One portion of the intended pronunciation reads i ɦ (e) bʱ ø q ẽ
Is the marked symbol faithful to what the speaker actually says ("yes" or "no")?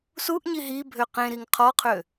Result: no